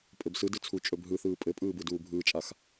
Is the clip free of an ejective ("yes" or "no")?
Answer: no